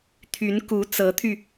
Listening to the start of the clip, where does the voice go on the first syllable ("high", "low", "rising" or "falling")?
rising